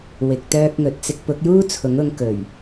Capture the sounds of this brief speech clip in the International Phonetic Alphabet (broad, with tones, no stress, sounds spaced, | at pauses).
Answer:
w ɪ˨ k̚ t̪ œː˧ k̚ ŋ ɵ˨ t̚ t͡s ɪ˧ k̚ p ʊ˨˥ k̚ j uː˥ t͡sʰ ʊ˨˥ ŋ ʊ˧ ŋ k ɵ˨˩ ɥ